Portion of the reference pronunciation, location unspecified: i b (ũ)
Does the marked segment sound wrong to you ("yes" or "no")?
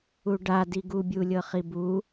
yes